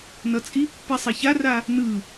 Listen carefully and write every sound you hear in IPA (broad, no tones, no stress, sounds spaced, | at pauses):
n ʌ t͡sʼ i pː i sˤ e ç a r a | n ɯ